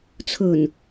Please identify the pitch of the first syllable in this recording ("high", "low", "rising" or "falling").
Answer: low